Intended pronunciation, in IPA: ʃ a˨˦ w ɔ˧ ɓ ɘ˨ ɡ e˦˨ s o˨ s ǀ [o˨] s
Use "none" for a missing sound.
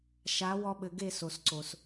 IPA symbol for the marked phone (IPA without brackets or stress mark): o˨